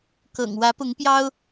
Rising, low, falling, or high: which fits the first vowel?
low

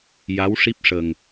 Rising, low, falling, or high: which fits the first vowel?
rising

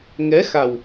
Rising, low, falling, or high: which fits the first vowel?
rising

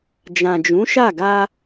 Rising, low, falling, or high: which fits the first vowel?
low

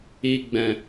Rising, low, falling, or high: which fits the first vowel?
low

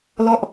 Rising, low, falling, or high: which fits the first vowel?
falling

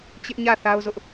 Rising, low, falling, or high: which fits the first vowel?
high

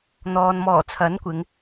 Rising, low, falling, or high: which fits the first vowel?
low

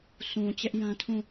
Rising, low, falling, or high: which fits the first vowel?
low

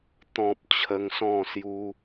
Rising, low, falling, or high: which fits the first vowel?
low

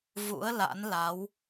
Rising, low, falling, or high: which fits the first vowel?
rising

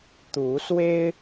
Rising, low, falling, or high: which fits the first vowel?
rising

